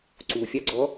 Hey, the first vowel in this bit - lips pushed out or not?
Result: yes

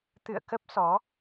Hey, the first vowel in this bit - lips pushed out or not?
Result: no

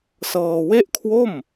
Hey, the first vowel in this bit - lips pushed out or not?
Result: no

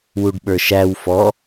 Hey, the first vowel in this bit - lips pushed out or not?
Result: yes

